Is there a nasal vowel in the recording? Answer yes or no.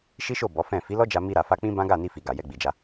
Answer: yes